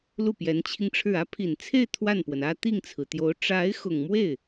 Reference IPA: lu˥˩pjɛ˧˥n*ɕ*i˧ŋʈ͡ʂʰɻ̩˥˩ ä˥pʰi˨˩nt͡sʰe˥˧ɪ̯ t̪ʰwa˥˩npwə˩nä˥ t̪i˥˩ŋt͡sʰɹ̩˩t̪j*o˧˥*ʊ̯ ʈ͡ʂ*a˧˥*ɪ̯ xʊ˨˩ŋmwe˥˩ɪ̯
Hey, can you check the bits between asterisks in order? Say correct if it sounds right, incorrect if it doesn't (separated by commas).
incorrect, correct, correct